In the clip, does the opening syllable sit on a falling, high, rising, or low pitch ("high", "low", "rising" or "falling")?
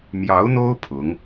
rising